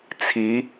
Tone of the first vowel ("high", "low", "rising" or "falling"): rising